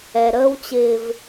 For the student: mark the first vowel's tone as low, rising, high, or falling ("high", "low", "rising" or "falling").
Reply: low